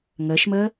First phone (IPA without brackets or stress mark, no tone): ŋ